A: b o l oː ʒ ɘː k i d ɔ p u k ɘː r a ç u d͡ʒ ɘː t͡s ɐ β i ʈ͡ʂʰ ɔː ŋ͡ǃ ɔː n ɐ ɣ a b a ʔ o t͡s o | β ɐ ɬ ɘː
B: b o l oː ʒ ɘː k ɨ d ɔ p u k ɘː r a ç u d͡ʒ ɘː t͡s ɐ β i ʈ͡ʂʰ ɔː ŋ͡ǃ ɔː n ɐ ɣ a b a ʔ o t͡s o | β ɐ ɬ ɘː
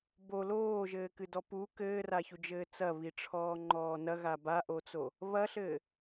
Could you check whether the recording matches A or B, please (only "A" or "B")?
B